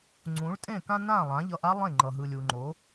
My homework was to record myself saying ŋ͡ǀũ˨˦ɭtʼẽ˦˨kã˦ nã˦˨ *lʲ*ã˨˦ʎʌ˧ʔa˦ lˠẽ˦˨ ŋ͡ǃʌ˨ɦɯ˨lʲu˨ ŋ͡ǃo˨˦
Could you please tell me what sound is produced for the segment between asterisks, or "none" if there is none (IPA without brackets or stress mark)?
lˠ